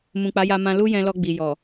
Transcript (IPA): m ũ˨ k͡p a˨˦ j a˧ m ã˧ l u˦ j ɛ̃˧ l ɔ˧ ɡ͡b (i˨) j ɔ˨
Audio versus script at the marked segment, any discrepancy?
no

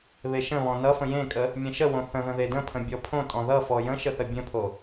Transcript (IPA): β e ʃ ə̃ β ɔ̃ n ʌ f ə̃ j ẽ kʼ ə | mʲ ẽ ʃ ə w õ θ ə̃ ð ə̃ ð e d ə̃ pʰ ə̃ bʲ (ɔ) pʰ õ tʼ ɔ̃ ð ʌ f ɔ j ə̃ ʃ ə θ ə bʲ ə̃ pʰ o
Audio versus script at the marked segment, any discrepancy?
no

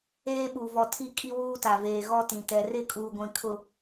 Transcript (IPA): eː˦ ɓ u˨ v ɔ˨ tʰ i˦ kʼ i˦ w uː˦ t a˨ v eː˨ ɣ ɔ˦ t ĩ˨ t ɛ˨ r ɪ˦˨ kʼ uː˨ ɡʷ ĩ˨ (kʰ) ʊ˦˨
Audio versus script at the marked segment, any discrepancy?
no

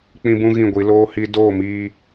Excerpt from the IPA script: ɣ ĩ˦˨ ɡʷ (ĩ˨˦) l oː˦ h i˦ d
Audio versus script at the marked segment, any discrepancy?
yes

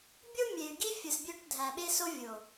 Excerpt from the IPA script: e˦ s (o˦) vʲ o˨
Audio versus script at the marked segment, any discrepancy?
no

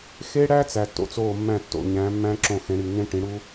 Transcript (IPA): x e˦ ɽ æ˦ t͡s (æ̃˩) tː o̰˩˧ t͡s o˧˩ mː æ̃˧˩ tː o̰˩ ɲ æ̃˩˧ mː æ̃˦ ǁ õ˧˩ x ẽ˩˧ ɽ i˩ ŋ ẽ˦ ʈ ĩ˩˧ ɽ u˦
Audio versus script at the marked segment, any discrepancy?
yes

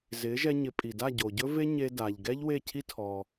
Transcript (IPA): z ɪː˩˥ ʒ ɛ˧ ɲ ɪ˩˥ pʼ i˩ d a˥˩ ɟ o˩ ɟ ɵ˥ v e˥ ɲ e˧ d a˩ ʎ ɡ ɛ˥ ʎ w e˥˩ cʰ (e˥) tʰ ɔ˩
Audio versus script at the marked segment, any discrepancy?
yes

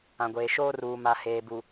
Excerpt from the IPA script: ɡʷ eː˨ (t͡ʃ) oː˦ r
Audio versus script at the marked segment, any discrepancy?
yes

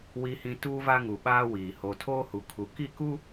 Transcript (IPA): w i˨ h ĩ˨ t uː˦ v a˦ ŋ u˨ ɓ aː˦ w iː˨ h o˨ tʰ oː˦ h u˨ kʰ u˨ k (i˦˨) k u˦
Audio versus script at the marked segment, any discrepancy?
no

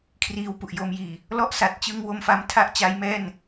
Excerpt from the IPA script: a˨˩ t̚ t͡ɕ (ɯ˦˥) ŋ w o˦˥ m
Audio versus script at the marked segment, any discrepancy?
no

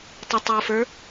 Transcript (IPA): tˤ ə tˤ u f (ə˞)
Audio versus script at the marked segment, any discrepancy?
no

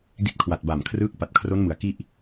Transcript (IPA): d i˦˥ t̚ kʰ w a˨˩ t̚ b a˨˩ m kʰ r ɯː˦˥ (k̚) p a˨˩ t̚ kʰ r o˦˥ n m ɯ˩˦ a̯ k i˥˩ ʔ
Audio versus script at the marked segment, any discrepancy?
no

